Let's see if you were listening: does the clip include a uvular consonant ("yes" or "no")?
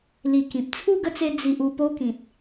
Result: no